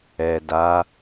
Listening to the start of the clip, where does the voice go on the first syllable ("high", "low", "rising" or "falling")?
low